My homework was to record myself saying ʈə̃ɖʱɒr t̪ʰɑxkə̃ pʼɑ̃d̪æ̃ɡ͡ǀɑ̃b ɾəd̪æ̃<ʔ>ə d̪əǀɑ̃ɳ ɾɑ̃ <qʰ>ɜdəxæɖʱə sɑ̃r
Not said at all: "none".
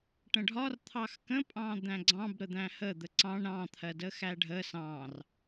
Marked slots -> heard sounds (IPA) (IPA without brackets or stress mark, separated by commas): h, t̪ʰ